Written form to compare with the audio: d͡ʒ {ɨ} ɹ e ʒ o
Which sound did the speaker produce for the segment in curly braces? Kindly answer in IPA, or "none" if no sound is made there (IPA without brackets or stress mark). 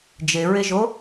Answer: e